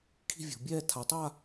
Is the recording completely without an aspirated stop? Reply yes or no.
no